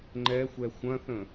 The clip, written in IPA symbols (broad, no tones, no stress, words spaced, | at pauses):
ŋ͡ǃɛxʷɛ xʷɐ̃θə̃